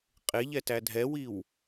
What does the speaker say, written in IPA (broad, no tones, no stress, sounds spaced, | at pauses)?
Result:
qʼ e ʎ ɛ t æ dʱ ɛ w i w